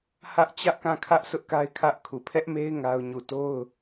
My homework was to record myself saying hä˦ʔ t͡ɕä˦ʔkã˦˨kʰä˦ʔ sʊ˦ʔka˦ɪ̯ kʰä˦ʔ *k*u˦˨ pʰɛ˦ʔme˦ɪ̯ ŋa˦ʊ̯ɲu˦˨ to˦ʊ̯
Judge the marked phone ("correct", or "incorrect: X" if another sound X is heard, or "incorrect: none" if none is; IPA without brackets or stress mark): incorrect: kʰ